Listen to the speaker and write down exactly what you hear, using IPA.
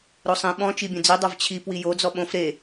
ɾ o sˤ ĩ ɓ ɔ̃ t͡ʃ i bʲ õ d͡z i dˤ o v t͡ɕʰ i p w i j o d͡z ɔ ɓ õ f ɾ e

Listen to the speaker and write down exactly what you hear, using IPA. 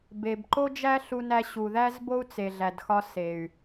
b e˨ b ǃ o˦ d͡ʒ æ˦ ɬ u˦ n æ˦ ɕ u˨ ð æ˦ z b o˦ u̯ t͡s e˨ ɮ æ˨ d x ɒ˦ s e˨ y̯

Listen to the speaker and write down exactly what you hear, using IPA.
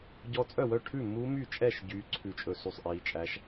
ɟ ɔ˧˥ t͡sʼ œ˥˩ w œ˥˩ ʈʰ ʉ˥˩ m u˧˥ m y˥˩ t͡ʃʼ ɛ˥˩ ʃ ɟ yː˧˥ ǀʰ ʉ˥˩ t͡ʃʼ ɵ˥˩ s y˥˩ sˤ ʔ iː˧˥ t͡ʃʼ æ˧˥ ʃ

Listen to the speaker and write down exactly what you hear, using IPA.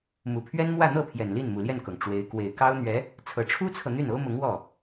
m u˨˩ pʰ ɥ ɛ˥ n m w ä˥˧ n̪ ɤ˥˩ pʰ j ɛ˨˩ n l i˥˩ n m u˨˩ l j ɛ˥˩ n k ɤ˩ ŋ ʈ͡ʂ w e˧˥ ɪ̯ k w e˨˩ ɪ̯ k ɑ˥ ʊ̯ n̪ ɥ ɛ˧˥ | t͡sʰ ɤ˨˩ ʈ͡ʂʰ u˥ t͡sʰ ɤ˨ n̪ y˥˩ n o˥ ʊ̯ m ʊ˧˥ ŋ w ɔ˥˩

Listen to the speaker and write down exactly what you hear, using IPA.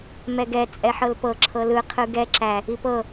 m ɛ ɡ ɛ t͡sʼ ɛ ħ ɤ l p ɤ ǁʰ ɤ l ɯ qʰ ɯ ɡ ɛ ǁ æ | i p ɤ

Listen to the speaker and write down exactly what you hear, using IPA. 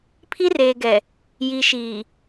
pʰ i˦ r eː˨ ɡ ɛ˨ | j i˨ ʃ iː˨

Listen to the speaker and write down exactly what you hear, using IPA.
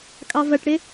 kʼ ɑ v ɐ ʈ ɽ ɪ

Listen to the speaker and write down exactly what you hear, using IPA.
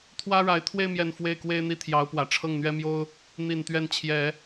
t̪ʰ w ä˥ ɻ a˧˥ ɪ̯ t̪ʰ w e˥˧ ɪ̯ m j ɛ˥˧ n f w e˥˩ ɪ̯ k w e˥ ɪ̯ n̪ i˥˩ t̪ʰ j ɑ˧˥ ʊ̯ p w ä˨˩ ʈ͡ʂʰ ɤ˥˩ ŋ n̪ ɥ ɛ˥ m j o˥ ʊ̯ | n̪ i˨˩ n t̪ ɥ ɛ˥˩ n t͡ɕʰ j ɛ˨˩˦

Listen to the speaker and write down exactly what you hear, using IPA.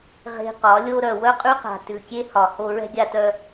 ʁ e̤˨ q ɒ˨˦ lʲ o˦ ɾ œ˨ w œ˦ qʼ ʉ˦ q a̤˨ t ʉ˨ kʲ e˦ h ɒ˨ h o˨ ɹ ɛ̤˦ ɡʲ a˦ t œ˦

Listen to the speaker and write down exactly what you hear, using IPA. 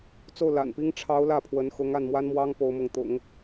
t͡s o˥˩ ʊ̯ l a̰˨˩ n p i˥ ŋ ʈ͡ʂʰ ɑ˧˥ ʊ̯ l ä˥˩ pʰ w ə˧˥ n x ʊ˧˥ ŋ a˥˩ n m w a˥ n m w ɑ˥ ŋ p o˧˥ ʊ̯ m ʊ˧˥ ŋ t̪ ʊ̰˨˩˦ ŋ

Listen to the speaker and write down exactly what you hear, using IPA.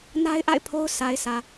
n a˦ ɪ̯ ʔ a̰˦˨ ɪ̯ pʰ o˦ ʊ̯ s a˨ ɪ̯ s ä˨

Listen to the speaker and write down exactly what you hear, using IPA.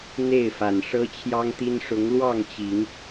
n̪ e˥˨ ɪ̯ f a˨˩ n ʂ ɤ˦ t͡ɕʰ j ɑ˦ ŋ t̪ i˦ n ʂ ʊ˨˦ ŋ l w ɑ˥˨ ŋ t͡ɕ i˨˦ ŋ

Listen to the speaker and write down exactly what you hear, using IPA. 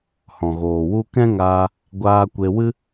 h ɔ̃˨ ɣ oː˨ w u˦ k ɛ̃˦ ŋ aː˧ | ɡʷ aː˧ kʷ e˧ w ɨ˦

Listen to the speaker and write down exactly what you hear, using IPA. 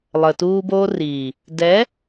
lˠ ə˨ t uː˦ b oː˦ r iː˨ | d ɛ˨˦

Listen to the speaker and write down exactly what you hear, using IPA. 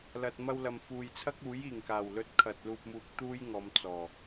l ɐ˨ t̚ m ɐ˧ w l ɐ˨ m f uː˨ j t͡sʰ ɐ˥ k̚ uː˨˥ j iː˨˩ ŋ k aː˨˩ w l ɵ˧ t̚ kʰ ɐ˨ t̚ l uː˧ p̚ m uː˧ k̚ t̪ uː˥ j ŋ ɔː˨˧ m t͡s ɔː˨˩

